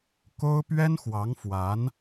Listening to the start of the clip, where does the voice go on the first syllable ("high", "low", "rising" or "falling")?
high